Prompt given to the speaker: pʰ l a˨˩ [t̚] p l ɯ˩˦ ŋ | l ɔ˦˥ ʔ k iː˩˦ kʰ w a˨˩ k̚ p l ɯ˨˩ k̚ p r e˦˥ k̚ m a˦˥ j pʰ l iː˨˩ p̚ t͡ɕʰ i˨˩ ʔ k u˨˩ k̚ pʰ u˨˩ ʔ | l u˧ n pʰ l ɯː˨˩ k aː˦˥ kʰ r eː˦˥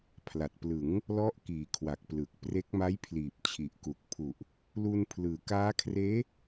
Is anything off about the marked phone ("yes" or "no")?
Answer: no